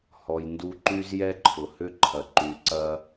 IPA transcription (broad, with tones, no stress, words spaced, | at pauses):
hɔ˩jndu˧ǃy˥z jɛ˥ǃʰʊ˩hʏ˥ǃʰɐ˩ ǃy˩ǀɐ˧